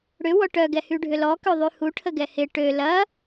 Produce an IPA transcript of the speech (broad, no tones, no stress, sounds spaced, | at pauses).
ɽ ʏ w ɔ ʈ œ ɡ ɛ h y ɖʱ ʏ l ɔ k ø ðˤ y h u ʈʰ ə ɡ ɛ h ɪ ʈ ø l ɐ